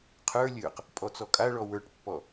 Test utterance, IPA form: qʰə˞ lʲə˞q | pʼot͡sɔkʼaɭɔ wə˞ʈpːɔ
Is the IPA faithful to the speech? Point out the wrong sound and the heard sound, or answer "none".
o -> ɔ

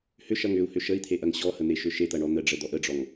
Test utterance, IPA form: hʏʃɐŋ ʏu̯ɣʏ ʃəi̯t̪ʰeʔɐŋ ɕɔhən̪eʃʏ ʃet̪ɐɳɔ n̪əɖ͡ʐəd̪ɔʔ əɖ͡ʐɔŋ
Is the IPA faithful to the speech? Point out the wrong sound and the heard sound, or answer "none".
ɣ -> h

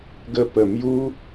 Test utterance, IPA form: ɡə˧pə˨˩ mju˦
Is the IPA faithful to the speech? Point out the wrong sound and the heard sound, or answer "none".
none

